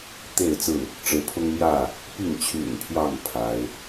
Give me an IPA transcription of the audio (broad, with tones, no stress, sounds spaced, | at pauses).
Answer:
t̪ e˥˨ ɪ̯ t͡s ɹ̩˥˨ | ʈ͡ʂ ɻ̩˨˦ pʰ ʊ˦ ŋ m j ä˥˨ | p i˥˨ ŋ t͡ɕʰ y̰˨˩ n pʰ j ɑ˥˨ ŋ pʰ a˨˦ ɪ̯